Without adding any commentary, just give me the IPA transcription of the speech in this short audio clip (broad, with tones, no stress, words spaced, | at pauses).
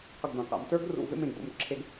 qə˧˩ɡdã˩˧qa̰˩˧m tə˞˥ɡrṵ˧˩ vḛ˥˧mẽ˧˩ɡdo̰˧˩mǁʰe˧ɡ